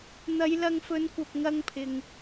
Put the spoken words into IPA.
n̪ɐ˨˧jlɐ˧ŋ fɵ˨˧nkʷɐ˨p̚ ŋɐ˧ŋpʰɪ˨ŋ

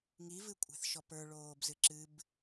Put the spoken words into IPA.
ŋivɨ kʷʼɛ̤θʃɔpə˞ ɭoːbzɨǁɨb

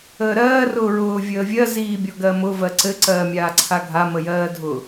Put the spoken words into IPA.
əːɾɜː rʊːɹʊː vʲəːvʲɜ ziːbʲɔɡɜmʊ vɜǀɘ ǀɜːmʲaːǀʰaɡʱa məjɜːdʱʊ

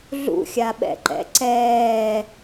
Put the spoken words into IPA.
ɮṵxʲaɓɛ̰ǃɛ̰ ǀɛː

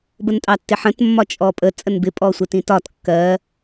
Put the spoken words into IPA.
bəntʼɑtːɪħə̃t mːɒt͡ʃʼɔpʼə t͡sʼənbɪ pʼɔsʷɛtĩtɒt kːɜ

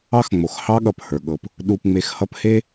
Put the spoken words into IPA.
ɑ˥xŋ͡mo˩x hɑ˥ɠʌ˨phə˞˩ɠɤ˨p | ɗu˨pŋ͡me˨x hʌ˦phe˥

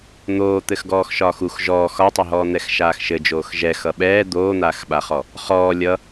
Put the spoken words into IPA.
n̪oːt̪ɘx ɡɔːxʃɒːxux ʒɔːx ɒtˤɘɦɔː n̪ɛxʃaːxʃɘd͡ʒoːx ʒɛ xʌɓɛː d̪oːn̪aːxɓaχɔ | χɔː lʲʌ

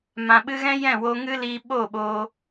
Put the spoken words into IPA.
mã˨ɓɨ˧ɣɛ̃˦ jɛ̃˦˨wo˧ŋɨ˦liː˧ ɓo˦˨ɓo˧

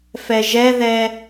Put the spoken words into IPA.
fɛʒɛðɛ

